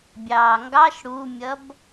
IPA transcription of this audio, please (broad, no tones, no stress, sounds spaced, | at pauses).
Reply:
bʲ ɑː ŋ ɡ ɑ ʃ ɽ u mʲ ʌ b